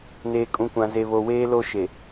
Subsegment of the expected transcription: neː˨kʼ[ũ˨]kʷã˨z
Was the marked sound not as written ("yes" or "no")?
no